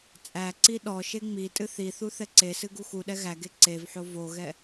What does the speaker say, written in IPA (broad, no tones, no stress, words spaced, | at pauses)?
t͡sʼæǀi ɗɔ ʃeŋ͡mitʼɨ θiθu θɛǀesɨ ɡuxuɗɛ ɣæɡe ǀevħo voɣɛ